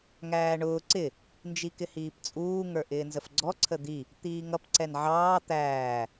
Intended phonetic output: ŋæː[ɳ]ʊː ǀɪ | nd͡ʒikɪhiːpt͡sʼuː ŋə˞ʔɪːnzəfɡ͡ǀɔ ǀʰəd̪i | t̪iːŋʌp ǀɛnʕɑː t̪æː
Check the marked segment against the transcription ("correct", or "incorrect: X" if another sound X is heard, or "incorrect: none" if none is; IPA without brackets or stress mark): correct